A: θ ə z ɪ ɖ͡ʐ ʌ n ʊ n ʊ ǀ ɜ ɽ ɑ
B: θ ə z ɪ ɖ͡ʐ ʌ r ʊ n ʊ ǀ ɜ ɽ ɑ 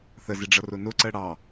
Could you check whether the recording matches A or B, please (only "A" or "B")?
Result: B